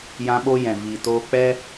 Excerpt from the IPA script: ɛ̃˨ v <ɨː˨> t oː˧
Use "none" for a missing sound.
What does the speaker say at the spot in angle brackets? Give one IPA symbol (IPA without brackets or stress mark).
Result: iː˨